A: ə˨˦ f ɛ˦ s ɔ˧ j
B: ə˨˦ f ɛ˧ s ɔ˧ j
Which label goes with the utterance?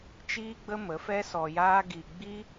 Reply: A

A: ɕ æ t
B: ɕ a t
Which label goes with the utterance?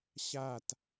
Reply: B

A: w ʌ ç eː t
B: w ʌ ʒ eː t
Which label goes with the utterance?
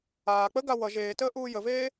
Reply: B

